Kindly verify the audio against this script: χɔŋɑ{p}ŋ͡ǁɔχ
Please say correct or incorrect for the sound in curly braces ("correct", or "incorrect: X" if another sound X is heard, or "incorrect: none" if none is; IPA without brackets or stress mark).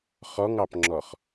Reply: correct